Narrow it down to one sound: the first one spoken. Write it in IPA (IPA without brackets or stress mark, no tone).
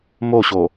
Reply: m